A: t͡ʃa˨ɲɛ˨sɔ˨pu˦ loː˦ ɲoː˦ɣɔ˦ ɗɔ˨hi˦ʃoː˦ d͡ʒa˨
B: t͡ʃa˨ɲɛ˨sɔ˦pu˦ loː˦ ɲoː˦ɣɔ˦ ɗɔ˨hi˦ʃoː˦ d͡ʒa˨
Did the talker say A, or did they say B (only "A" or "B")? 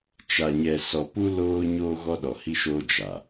A